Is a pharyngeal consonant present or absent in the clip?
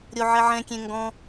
present